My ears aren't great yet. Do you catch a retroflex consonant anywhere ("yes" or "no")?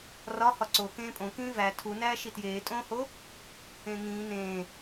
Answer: no